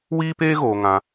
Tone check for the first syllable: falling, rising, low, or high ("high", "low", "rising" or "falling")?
high